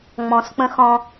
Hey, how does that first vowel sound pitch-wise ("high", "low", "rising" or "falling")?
rising